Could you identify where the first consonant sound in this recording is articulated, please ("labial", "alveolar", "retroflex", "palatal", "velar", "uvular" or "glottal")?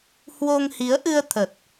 glottal